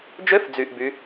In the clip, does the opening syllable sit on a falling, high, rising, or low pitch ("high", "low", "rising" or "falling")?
rising